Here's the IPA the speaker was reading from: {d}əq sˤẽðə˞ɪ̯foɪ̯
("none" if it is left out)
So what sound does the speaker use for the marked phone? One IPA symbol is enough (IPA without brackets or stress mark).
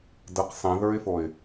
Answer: d